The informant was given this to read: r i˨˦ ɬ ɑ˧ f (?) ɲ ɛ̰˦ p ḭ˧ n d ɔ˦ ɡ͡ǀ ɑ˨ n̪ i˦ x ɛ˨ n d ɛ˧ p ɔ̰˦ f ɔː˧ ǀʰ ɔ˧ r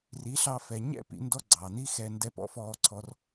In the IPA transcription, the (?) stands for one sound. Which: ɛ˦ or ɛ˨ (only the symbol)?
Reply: ɛ˨